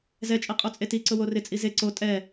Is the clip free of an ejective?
no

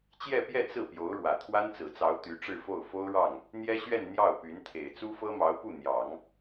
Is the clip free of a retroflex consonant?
no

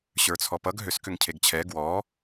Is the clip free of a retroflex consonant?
yes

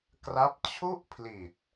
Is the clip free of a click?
yes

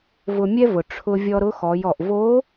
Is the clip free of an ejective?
yes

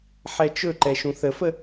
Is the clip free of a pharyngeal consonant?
no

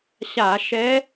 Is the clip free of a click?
yes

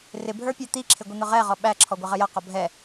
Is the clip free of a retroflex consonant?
yes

